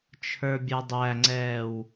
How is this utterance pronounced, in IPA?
t͡ʃʰ ə˞ bʲ ɛ dˤ æ ŋ͡ǀ ɛː w

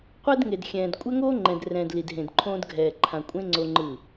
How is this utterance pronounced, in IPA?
qʷ ɛ˦ d ŋ e˨ d xʲ ɛ̃ː˨ d kʷʼ ɛ˦ ŋ oː˦ ŋ͡ǃ ɛ̃˨ d r ɛ̃ː˨ d l i˨ d ɦ ẽ˨ d ǃʰ õː˦ d ɡʱ ɛː˨ ǃʰ ã˨ kʷʼ ẽ˦ ŋ͡ǀ o˦ ŋ͡ǃ ɯ˦˨

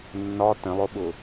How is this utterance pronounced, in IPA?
nː ɒ t ə̃ lˠ ʊ ɓ ʊ

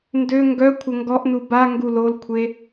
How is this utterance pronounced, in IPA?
n d ø ŋ ɡ œ kʷʰ ə ŋ ɡ ɔ ʔ n u b a ŋ ɡ u l o l kʷʰ e

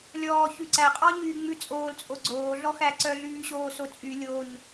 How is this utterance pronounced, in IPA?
lʲ ɔː ç ʉ ǀ æ qʼ ɔ ɲ yː ŋ͡m ʉ t͡sʼ oː l t͡sʼ o ɡ͡ǀ oː ɮ ɔ x æ ǀ œ ɮ yː ɕ oː s o t͡sʼ y lʲ o ɲ

